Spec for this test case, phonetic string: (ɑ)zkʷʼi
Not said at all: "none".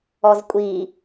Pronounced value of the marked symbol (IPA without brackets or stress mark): ɔ